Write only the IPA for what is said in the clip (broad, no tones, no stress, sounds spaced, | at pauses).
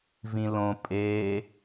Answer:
v ĩ l õ pʼ e